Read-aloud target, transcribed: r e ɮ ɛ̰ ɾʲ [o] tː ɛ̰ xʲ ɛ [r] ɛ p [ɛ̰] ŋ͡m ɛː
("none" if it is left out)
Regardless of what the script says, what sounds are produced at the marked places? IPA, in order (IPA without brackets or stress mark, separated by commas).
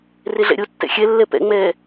o, lː, ɛ̰